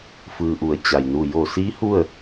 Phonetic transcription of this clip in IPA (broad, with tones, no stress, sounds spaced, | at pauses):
f ɯː˩ ʔ u˩˧ ə̯ t͡ɕ a˩ j n u˧˩ j o˧˩ s iː˧˥ h u˥˨ ə̯